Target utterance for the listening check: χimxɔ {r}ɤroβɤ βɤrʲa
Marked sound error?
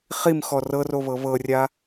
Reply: no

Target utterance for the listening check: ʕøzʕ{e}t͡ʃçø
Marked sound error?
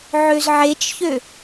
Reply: no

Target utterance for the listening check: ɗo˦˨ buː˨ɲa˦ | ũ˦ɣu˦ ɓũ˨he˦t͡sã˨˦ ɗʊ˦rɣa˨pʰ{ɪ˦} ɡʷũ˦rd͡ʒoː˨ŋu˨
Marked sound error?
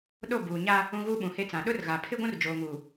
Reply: no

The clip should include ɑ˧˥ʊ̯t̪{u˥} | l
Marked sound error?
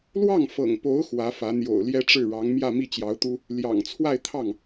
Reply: no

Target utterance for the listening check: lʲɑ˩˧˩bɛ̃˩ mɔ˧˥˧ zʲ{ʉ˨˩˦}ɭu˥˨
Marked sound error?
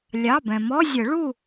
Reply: yes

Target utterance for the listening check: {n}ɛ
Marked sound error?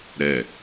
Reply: yes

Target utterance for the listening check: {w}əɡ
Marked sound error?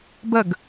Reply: yes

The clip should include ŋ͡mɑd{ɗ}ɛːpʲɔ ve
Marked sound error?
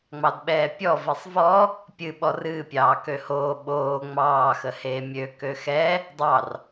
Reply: yes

